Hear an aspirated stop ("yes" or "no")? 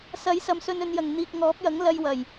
no